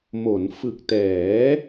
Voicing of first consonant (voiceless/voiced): voiced